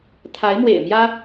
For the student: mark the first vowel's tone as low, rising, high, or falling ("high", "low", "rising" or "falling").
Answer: rising